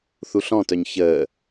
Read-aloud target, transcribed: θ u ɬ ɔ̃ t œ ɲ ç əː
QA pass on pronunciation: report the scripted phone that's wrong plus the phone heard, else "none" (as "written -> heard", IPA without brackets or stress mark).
none